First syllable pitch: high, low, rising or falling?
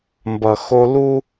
low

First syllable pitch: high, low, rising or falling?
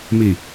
low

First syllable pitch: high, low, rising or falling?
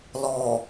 low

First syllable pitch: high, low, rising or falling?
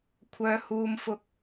low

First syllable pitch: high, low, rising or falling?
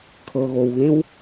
low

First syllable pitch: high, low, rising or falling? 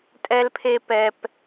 high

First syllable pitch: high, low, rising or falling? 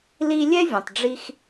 high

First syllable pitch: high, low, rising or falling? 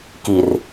low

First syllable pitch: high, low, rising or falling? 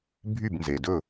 falling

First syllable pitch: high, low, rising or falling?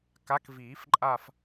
rising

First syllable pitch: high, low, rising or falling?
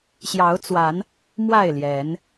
rising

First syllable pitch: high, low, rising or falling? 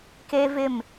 high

